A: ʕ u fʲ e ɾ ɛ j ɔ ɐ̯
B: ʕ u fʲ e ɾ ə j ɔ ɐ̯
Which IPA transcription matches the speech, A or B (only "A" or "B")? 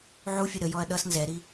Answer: B